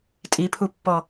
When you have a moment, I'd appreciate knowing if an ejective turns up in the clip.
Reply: yes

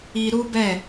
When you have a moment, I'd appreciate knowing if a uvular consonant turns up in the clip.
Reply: no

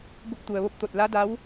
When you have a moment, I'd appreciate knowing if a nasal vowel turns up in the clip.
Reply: no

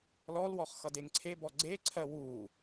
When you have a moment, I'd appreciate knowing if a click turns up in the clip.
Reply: yes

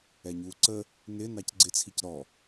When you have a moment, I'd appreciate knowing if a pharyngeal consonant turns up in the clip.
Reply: no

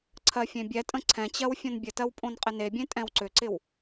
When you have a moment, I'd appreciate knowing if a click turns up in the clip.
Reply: yes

